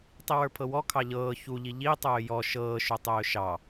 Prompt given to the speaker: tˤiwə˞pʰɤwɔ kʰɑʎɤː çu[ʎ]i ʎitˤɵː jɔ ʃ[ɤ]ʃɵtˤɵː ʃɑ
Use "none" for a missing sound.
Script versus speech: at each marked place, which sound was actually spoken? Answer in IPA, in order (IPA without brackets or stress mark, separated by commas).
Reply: ʎ, ɤː